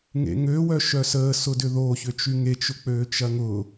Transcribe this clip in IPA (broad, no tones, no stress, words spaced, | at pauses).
ŋḛŋø wœʃœsəː sʊdʏðo çʏt͡ʃyŋet͡ʃ ʊk͡pøːt͡ʃɐŋʊ